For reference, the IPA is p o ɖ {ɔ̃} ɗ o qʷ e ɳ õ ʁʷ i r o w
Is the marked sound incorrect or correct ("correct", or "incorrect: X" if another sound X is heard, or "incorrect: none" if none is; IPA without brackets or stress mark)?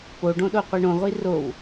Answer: incorrect: õ